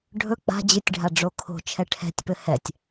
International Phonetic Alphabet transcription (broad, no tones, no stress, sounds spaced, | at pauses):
ɖʱ ɵ k͡p a̤ d͡ʑ ɨ tʲ ɖʱ a ɖ͡ʐ o kʰ o̤ t͡ʃʰ ɛ ʈʰ ɛ̤ tʲ p ɘ h ɛ tʲ